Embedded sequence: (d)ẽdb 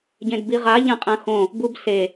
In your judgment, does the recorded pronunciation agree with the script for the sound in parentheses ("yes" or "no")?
no